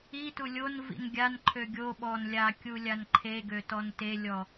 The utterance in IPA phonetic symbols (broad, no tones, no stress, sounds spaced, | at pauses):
i t u lʲ o n v ḭ n ɡʲ a n ǃʰ ø ɡʲ o ɓ ɔ n lʲ a kʲ u lʲ a n ǃʰ e ɡ ø t ɔ n t e lʲ ɔ